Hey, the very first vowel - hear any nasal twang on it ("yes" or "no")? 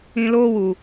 yes